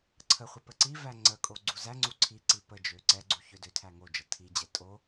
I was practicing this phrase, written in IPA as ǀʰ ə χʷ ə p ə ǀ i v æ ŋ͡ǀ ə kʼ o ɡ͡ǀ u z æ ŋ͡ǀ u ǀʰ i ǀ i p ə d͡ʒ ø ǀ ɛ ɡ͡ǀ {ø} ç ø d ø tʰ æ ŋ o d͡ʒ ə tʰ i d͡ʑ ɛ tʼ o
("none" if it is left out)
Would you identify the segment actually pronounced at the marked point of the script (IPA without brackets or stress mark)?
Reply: u